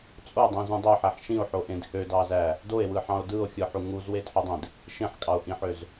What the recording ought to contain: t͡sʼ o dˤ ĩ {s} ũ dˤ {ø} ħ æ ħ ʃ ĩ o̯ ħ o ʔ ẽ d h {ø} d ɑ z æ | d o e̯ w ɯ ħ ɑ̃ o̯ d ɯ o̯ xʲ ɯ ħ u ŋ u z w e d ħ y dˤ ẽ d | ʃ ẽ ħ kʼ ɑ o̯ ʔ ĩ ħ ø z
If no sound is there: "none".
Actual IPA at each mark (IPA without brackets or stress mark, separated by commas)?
z, ø, ø